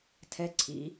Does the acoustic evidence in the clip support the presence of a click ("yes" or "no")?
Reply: yes